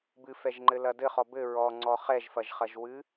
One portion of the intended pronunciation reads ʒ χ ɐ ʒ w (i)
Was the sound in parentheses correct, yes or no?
no